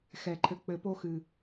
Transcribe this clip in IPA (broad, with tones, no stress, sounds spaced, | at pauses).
x ɛ˨ ǃʰ ɘ˨ k͡p ɘ˨ p o˧ x ɨ˨